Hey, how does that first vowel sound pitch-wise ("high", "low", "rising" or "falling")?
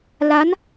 rising